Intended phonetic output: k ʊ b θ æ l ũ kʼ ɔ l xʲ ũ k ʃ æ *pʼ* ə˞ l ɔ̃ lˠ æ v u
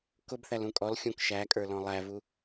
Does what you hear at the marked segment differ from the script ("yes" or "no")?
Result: yes